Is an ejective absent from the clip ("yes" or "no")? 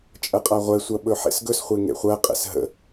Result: no